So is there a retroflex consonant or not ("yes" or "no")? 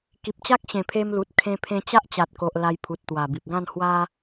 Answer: no